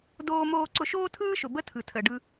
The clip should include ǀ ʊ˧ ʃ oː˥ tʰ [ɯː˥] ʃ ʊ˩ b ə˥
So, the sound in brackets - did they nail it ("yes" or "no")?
yes